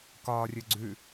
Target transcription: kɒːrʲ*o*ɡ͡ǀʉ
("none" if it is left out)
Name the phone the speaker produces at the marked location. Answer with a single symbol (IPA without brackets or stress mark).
ɵ